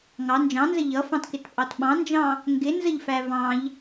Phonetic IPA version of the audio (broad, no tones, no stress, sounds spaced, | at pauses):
ŋ ɑ n d͡ʒ ɑ̃ n z ə ʎ ʌ f ɑ̃ t k ɪ t pʼ ɑ t ɓ ɑ̃ n d͡ʒ ɑ̃ | ŋ ɡ ɪ n z ə ʎ f æ v ɑ̃ ʎ